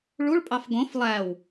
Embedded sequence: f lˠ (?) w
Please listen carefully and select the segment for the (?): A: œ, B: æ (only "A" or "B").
B